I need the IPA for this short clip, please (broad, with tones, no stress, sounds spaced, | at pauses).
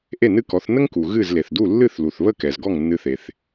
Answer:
ʔ e˥˩ n ɨ˥˩ k ɔ˩˥ θ n ə˥ ŋ k u˩ ɣ ɨ˥˩ z l e˩ θ d u˥˩ lː ɨ˥˩ θ l u˩ θ β ə˥˩ k ɛ˩ z ɡ ɔ˥˩ ŋ nː ɨ˧ θ e˩ θ